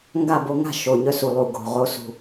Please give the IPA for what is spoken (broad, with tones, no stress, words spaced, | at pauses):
ŋɡa˥˨ bo˧ŋa̤˥˨ ʃo˨˩ɲœ˧ su˨˩lˠu˨˩ ɡo̤˨˩ʁo˧ sṳ˨˩